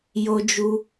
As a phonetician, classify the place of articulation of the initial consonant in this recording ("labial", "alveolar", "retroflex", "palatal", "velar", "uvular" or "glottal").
palatal